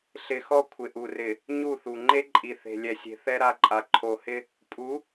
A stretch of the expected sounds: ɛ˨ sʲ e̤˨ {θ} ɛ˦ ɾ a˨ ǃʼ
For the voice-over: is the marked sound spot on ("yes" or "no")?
yes